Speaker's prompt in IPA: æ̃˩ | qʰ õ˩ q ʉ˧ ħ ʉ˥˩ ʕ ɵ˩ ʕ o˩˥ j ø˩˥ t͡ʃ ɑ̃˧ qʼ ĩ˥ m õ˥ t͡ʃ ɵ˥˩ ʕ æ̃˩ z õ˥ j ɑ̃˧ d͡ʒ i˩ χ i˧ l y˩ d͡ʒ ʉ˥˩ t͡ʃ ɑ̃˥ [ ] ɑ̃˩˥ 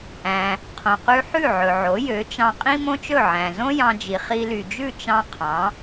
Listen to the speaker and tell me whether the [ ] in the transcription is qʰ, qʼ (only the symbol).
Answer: qʰ